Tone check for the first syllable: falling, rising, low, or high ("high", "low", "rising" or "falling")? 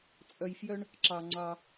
low